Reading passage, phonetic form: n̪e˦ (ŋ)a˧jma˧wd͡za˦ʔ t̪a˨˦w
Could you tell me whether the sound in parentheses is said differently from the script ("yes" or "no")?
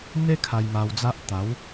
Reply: yes